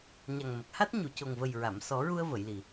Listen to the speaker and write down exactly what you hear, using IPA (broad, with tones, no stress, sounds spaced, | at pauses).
ɲ a˨˩ ŋ m ə˨˩ k̚ h a˦˥ t̚ ɲ u˨˩˨ c o˨˩ ŋ v ə˨˩ j ɹ a˨˩˨ m s ɔ˨˩˦ ɹ u˧ ə̯ v ə˨˩˨ j l i˨˩